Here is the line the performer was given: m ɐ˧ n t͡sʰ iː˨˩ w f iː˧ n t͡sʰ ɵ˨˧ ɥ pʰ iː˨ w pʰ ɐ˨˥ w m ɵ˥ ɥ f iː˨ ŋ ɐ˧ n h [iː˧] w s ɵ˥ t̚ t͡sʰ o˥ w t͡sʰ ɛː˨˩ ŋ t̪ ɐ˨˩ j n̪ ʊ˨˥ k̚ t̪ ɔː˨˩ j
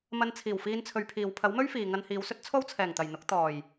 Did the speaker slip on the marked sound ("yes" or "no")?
yes